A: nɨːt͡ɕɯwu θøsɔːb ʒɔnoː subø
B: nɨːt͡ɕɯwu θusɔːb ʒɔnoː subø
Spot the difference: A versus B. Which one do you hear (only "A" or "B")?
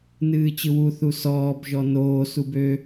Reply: B